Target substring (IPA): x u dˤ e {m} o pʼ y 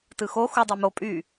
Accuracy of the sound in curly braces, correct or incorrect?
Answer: correct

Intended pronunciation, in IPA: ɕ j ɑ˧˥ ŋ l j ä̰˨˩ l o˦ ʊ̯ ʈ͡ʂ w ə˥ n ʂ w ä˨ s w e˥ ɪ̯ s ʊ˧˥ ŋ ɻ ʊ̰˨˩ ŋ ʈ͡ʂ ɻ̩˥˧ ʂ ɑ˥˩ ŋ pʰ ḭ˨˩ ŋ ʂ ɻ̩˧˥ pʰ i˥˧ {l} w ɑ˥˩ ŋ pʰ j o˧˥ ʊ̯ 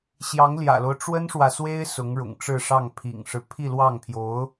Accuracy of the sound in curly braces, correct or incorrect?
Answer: correct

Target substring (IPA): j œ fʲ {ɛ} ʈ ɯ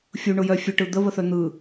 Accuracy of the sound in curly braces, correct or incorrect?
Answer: incorrect: œ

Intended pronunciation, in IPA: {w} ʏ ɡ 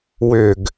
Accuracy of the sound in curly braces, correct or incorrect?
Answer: correct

